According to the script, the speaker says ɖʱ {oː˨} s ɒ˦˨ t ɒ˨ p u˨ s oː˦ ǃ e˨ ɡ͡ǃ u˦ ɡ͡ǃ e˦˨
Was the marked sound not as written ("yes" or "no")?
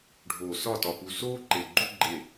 no